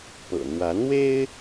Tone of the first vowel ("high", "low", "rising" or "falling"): low